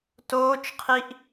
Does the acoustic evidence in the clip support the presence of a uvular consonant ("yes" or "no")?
yes